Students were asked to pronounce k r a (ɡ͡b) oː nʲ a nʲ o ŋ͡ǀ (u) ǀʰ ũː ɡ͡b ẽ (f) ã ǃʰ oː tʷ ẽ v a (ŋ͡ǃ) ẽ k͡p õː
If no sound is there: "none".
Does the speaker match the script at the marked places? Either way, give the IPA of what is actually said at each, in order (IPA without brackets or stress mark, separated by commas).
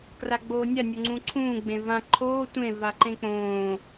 ɡ͡b, ũ, v, ǃ